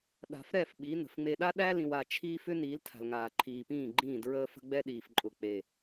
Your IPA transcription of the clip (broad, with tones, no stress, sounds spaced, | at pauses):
ɗ a̤˨ f ɾ ɛ˦˨ f ɓ i˨˦ n ə̤˨ f ŋ͡m e˨ ɗ a˦ ɗ æ˦ l ĩ˨ w a˨ t͡ʃʰ iː˦ f ʏ˦ n iː˨˦ l tʰ a̤˨ l ŋ aː˨ ǃʰ iː˨ p ĩː˦˨ ɡ͡ǃ ĩː˦˨ d ɹ əː˦ f ə̤˦ ɡ͡b ɛ˦ ɗ iː˨ f ǃʼ ʊ˨ k͡p e˨